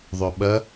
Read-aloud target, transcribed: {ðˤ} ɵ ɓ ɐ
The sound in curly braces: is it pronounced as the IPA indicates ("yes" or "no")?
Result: yes